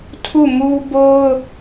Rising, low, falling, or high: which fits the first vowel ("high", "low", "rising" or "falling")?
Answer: falling